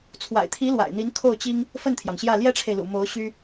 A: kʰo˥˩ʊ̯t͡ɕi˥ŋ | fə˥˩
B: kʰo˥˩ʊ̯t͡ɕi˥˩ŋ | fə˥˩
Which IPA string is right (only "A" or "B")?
A